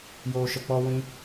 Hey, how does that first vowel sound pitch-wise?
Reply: low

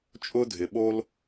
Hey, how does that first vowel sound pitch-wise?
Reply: high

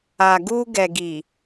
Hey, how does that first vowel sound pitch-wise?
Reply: low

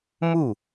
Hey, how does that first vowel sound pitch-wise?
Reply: falling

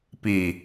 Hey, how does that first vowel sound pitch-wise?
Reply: low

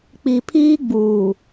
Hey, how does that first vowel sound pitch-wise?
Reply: low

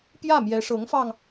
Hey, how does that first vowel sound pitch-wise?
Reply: falling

